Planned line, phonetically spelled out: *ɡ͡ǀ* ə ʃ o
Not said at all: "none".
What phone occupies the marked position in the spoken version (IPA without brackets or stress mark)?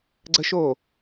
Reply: ɡ͡ǀ